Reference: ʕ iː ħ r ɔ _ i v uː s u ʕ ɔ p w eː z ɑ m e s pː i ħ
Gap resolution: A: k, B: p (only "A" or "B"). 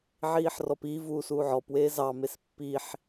B